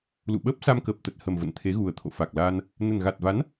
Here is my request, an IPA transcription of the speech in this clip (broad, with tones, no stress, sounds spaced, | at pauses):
l ṵ˧˨ ɓ əː˦˥ p̚ s a˧ m k əː˨˩ p̚ t̪ ə˨˩ t̚ h ə˨˩ m v ə̰˧˨ n t̪ʰ e˨˦ ɣ u˨˩ ə̯ t̪ʰ o̰˧˨ f a˨˩ k̚ l aː˧ n | n ə˨˩ n ɣ a˨˩ t̚ v a˨˦ n